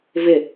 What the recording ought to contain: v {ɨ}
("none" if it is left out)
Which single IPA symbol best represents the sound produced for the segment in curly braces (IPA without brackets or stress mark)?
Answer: ɪ